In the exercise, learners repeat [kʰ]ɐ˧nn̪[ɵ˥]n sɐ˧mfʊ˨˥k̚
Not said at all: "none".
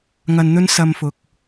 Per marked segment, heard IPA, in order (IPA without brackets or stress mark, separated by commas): ŋ, ɵ˥